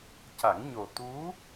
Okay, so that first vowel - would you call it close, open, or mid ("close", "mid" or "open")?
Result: open